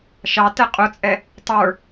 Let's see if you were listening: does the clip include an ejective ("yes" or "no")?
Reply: yes